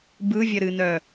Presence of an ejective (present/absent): absent